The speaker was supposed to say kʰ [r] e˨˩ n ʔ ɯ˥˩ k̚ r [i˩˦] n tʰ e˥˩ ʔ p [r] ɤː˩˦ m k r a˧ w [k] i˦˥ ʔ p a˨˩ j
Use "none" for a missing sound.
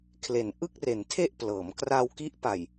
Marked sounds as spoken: l, e˩˦, l, k

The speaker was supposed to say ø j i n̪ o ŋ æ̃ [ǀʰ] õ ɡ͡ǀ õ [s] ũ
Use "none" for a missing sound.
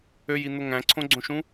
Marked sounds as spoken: ǀʰ, ʃ

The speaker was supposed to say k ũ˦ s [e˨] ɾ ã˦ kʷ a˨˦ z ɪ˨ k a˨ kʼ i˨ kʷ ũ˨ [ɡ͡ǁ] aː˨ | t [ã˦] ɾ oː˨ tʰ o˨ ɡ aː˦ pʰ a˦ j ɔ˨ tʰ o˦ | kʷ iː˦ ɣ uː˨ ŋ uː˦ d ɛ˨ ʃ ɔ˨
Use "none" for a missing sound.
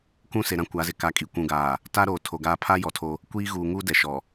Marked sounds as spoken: e˨, ɡ, a˦

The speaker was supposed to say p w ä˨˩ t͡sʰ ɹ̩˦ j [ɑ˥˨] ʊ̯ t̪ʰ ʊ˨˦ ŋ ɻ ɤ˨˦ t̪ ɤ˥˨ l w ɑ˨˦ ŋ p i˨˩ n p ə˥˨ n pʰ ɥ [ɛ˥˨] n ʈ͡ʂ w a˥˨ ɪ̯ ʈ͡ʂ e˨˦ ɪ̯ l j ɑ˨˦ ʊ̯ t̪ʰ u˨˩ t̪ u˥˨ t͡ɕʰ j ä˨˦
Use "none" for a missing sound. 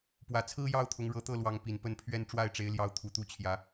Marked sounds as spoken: ɑ˥˨, ɛ˦

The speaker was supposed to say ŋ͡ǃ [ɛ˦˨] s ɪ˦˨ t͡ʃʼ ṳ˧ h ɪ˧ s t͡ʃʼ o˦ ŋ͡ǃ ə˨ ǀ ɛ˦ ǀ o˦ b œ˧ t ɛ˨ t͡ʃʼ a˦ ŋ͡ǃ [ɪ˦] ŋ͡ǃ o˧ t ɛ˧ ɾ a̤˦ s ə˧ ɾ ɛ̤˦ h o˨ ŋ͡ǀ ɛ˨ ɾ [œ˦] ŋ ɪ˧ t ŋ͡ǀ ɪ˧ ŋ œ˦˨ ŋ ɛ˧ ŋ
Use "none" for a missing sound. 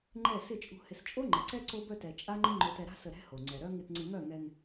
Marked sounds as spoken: ɛ˦˨, ɪ˦, œ˦

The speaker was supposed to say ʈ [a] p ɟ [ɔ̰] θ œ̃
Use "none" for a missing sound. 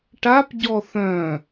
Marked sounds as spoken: a, ɔ

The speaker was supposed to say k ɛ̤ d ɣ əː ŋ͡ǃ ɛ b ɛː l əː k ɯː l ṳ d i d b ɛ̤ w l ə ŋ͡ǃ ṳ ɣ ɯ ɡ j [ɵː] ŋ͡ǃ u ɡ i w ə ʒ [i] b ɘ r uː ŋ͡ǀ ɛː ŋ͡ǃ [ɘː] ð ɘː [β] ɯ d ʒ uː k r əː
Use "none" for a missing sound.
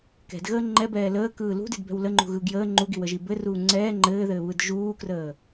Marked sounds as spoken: əː, i, ɘː, β

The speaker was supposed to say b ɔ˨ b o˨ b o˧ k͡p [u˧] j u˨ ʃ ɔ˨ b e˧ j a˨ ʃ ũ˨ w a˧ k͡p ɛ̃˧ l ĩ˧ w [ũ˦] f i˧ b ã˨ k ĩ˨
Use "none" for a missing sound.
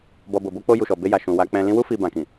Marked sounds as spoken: o˧, u˦

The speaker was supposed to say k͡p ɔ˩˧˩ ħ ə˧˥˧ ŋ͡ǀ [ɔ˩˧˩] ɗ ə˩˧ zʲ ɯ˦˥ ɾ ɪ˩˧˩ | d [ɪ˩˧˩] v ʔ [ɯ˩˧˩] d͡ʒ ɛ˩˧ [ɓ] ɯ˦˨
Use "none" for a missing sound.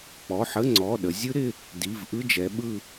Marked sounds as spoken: ɔ˩˧˩, i˩˧˩, ɯ˧˥˧, ɓ

